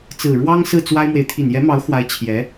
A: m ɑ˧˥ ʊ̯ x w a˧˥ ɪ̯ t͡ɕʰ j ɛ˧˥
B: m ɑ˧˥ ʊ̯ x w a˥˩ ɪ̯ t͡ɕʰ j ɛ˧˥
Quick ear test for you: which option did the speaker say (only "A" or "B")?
A